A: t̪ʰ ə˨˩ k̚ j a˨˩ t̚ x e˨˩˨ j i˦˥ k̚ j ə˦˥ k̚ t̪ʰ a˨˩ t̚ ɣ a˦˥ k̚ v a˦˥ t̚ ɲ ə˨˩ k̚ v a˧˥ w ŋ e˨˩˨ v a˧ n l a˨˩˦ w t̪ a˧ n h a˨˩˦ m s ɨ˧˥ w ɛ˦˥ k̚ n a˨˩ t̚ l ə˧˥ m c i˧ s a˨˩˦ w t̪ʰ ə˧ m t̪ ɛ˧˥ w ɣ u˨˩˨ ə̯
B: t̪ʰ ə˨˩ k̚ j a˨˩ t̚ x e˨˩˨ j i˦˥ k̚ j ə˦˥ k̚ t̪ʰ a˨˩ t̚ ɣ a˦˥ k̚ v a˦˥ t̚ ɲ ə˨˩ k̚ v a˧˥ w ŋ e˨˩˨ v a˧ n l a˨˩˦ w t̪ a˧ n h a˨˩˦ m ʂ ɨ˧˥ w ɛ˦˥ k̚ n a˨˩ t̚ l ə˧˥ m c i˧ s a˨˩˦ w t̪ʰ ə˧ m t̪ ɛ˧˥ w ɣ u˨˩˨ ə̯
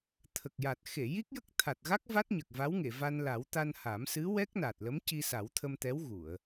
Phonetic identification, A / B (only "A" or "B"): A